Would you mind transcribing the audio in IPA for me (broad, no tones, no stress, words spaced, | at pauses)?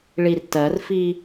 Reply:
ɭirtɜrfi